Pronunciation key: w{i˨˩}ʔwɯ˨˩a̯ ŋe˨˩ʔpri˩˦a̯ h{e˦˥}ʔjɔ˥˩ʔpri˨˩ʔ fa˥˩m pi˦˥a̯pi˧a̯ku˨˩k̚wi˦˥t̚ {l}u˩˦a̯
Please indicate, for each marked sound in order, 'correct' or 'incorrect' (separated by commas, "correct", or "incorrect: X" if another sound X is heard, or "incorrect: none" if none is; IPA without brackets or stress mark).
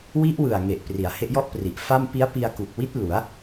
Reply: incorrect: i˦˥, correct, correct